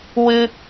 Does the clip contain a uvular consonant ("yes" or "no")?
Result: no